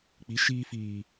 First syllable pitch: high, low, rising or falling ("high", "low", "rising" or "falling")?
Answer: rising